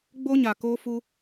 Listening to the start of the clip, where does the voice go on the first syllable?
high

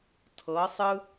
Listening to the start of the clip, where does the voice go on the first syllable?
rising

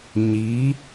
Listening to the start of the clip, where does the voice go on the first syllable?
rising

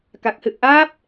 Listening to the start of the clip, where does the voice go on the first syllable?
low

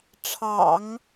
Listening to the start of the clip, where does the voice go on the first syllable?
low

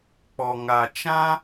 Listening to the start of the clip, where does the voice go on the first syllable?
low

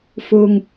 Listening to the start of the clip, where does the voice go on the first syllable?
high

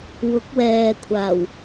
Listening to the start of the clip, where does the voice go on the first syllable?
rising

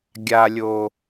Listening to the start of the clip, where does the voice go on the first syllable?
high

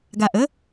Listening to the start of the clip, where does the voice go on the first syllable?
low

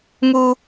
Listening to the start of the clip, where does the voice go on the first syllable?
high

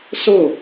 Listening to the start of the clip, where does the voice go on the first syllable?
falling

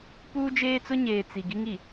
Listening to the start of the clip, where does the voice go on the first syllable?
high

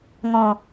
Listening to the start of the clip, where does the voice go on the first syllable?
low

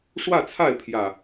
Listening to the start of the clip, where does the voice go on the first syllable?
falling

